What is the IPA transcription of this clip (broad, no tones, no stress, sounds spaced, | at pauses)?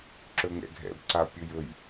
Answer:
ǁ ɵ ŋ ɛ̰ ɡʱ ɛ̰ b ǀ a pʲ ʊ j ɵ j